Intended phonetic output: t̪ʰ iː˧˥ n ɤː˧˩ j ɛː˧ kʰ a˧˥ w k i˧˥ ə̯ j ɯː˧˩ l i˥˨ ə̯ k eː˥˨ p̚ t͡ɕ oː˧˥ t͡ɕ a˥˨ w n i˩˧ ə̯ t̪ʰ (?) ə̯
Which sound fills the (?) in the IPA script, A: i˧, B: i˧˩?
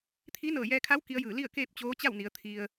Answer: A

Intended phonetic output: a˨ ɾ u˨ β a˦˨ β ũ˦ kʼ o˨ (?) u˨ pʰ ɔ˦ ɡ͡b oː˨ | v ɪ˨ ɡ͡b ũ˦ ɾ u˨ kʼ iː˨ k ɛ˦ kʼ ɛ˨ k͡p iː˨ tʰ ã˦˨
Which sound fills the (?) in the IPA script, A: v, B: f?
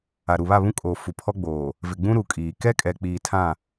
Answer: B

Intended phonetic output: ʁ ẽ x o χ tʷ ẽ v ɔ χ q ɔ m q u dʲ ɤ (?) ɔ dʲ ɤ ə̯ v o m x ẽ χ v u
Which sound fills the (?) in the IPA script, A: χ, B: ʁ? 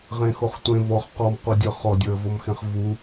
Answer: A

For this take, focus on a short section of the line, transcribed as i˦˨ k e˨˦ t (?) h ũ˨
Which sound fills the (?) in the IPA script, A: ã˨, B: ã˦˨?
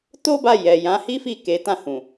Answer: B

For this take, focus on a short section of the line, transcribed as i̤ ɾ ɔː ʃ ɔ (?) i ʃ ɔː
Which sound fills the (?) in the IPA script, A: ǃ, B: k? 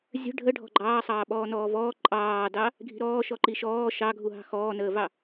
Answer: A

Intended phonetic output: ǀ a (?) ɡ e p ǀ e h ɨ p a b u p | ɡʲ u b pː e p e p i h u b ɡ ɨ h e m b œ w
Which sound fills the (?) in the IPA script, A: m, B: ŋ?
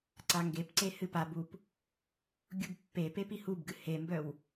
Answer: B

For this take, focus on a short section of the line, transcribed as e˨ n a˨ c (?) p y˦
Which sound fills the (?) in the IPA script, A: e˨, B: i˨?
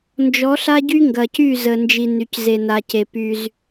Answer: A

